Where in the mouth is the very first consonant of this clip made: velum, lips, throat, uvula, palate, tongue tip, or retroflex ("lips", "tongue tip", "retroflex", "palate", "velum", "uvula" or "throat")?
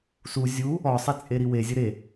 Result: tongue tip